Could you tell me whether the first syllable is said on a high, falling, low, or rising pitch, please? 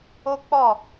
high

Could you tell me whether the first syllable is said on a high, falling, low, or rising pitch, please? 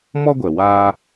high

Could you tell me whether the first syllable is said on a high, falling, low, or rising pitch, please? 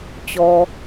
low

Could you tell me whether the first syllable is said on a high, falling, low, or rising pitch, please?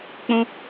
high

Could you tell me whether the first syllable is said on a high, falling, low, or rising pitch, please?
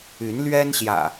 rising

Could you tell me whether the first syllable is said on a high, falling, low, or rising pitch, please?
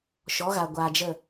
rising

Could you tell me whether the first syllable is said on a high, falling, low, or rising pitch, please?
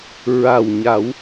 low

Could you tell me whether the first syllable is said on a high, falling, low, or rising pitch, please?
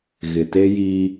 low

